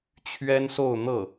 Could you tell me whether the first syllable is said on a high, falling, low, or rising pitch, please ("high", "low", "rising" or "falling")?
high